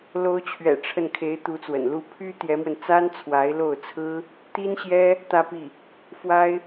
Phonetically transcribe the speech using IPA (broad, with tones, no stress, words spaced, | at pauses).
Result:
lo˧˥ʊ̯t͡ɕʰɥɛ̰˨˩ ʈ͡ʂʰə˥˩n kʰe˧˥ɪ̯t̪u˧˥t͡swə̰˨˩nlu˥˩ pʰy˥ t̪jɛ˧˥mwə˧n t͡sa˥nt͡sʰwa˧˥ɪ̯lo˥˩ʊ̯t͡sʰɹ̩˥ | t̪i˥nɕjɛ˥ | t̪ä˥˧pi˥˩ | fwa˥ɪ̯